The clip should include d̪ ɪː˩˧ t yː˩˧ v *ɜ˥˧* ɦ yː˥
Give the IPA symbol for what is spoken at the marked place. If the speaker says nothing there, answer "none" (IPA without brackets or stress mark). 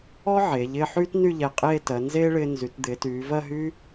ɜ˥˧